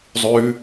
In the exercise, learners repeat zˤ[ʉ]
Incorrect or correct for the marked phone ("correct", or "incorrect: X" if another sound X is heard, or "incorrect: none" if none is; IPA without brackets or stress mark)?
correct